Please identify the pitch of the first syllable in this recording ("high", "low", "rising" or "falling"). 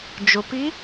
low